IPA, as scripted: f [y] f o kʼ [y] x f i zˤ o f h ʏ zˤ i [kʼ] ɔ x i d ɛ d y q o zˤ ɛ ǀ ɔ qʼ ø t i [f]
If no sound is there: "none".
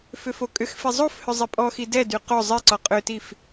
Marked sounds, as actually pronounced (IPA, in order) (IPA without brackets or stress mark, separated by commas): ʏ, ʏ, pʼ, f